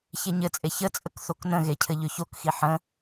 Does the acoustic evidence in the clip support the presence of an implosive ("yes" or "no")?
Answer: no